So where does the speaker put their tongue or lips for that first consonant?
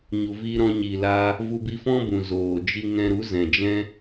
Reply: palate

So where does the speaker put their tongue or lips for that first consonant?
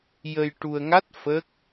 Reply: palate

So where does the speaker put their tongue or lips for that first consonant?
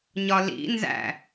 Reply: palate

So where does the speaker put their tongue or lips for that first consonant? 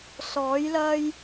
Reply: tongue tip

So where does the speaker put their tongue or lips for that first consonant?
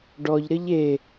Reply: retroflex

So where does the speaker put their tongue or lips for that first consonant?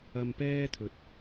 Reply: lips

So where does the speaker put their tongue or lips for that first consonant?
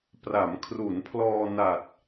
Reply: lips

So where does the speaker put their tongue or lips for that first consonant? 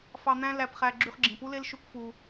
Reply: lips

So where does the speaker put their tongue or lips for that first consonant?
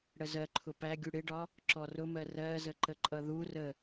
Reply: retroflex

